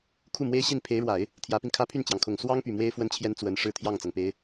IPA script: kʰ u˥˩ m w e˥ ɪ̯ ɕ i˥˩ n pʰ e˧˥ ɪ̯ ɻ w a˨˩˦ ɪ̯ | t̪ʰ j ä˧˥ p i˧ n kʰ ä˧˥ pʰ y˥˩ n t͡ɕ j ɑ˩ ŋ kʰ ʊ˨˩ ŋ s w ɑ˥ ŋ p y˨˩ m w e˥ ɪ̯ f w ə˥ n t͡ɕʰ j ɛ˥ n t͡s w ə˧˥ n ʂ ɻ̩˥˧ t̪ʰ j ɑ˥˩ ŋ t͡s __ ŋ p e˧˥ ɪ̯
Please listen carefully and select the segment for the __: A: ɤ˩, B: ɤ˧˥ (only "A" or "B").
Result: A